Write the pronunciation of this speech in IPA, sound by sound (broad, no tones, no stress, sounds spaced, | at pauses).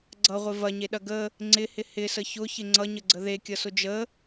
ɡ͡ǀ ʌ ʁʷ ɪ v ɐ ɲ e ɗ ɐ ɡ ə | ŋ͡ǀ ɪ h ɪ h ɪ s ə ç ʊ ç ɪ ŋ͡ǀ ʌ ɲ ə ɡ͡ǀ ə ð e kʲ ʌ s ʊ d͡ʒ ə